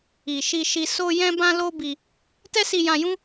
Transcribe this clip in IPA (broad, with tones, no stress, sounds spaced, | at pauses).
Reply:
i˨ ʃ i˧ ʃ i˧ s o˦ j ɛ̃˦ b ã˦ l o˦ b i˧ | t ɛ˦ s i˧ j ã˧ j ũ˦